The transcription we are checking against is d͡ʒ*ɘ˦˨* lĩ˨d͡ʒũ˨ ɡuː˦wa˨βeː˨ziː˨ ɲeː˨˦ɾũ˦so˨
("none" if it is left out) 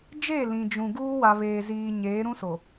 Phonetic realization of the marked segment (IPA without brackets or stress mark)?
e˦˨